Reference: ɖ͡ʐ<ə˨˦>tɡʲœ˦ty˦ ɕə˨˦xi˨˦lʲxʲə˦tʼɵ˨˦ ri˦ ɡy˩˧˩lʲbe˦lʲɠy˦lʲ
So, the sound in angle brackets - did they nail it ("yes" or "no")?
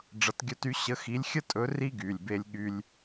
no